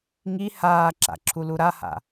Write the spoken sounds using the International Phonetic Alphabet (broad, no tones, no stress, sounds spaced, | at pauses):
ŋ i h aː ǁ a̰ ǁʰ u l u ɾ a h a̰